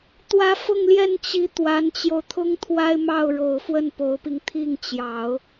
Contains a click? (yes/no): no